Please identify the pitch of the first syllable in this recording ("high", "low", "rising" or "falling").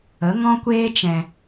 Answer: rising